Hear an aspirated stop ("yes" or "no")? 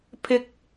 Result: yes